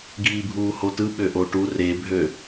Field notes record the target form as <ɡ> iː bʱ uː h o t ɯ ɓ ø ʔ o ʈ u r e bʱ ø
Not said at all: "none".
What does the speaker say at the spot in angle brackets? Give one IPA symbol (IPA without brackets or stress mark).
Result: ɡ